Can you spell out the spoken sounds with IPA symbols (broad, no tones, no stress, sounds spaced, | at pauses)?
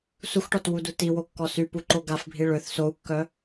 s u x ʈ ɔ t w u d u t i w o kː ɔ s y p u ǃ o ɡ a f bʱ i ɭ ø θ s o u̯ kː œ